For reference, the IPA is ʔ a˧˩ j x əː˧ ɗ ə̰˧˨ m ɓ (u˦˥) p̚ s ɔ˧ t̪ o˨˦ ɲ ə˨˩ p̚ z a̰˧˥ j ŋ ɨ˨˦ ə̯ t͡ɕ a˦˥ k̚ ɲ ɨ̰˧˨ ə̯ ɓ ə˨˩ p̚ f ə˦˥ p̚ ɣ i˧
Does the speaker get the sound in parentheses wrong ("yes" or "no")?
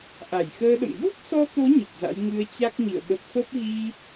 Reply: no